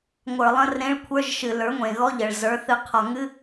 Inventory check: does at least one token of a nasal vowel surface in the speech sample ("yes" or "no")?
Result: yes